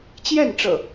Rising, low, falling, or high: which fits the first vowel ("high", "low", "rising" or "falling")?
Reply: falling